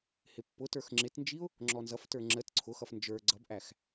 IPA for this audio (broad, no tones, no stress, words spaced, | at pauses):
hɪpːʊtə˞x ŋ͡ǁɪtnd͡ʒiʊ̯ | ŋ͡ǁɔnzʌftə˞ ŋ͡ǁət ǀʰʊxʌf nd͡ʒə˞ ɡ͡ǀʌbʔæx